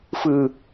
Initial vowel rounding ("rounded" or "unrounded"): unrounded